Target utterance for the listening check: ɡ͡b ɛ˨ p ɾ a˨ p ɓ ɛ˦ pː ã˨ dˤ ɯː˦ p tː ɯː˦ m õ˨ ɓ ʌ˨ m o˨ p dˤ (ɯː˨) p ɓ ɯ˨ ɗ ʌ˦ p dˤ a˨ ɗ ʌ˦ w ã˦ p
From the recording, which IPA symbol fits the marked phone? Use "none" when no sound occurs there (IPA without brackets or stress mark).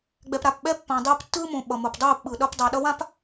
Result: ɯː˦˨